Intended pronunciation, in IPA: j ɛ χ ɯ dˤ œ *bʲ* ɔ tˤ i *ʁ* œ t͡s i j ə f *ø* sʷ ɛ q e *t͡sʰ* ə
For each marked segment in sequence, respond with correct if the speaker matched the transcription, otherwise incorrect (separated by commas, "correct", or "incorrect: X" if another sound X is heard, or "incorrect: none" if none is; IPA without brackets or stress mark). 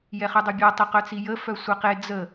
correct, incorrect: q, incorrect: œ, incorrect: d͡z